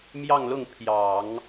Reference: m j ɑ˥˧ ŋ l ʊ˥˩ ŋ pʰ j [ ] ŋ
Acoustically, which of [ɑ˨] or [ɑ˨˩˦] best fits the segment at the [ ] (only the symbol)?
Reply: ɑ˨˩˦